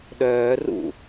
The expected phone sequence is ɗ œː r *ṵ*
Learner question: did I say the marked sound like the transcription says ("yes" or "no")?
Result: yes